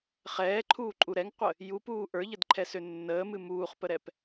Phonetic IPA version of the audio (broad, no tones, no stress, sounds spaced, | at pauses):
χ ɛː ǃʰ uː ǃʼ u ɾ ɛ ŋ qʷ ə | j u p uː ʔ ə˞ ʎ ə d ǃʰ ɛ s ø nː əː m ɨ m uː χ p ə ɾ ɛ p